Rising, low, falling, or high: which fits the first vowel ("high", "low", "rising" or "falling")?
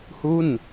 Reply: falling